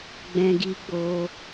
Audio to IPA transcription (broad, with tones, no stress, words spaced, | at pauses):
ɡ͡bɛ̃˧ɡi˧ ɡ͡bo˧